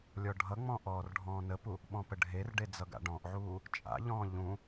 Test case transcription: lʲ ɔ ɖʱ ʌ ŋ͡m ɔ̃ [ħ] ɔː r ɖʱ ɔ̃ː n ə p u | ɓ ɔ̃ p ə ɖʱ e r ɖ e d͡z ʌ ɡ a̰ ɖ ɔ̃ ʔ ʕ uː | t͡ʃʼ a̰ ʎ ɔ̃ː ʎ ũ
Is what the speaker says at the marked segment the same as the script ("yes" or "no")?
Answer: no